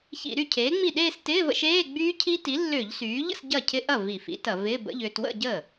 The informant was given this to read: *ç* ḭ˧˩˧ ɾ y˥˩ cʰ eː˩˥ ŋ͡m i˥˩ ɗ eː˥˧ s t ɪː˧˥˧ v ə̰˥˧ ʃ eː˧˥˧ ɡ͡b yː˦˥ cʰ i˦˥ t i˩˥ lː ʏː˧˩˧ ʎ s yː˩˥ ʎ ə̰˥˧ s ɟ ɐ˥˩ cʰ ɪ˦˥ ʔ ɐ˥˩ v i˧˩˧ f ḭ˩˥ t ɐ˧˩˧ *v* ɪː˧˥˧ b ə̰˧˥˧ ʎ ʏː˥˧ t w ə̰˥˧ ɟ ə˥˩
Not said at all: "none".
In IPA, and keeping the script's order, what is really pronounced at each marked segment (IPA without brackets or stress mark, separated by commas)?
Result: ç, v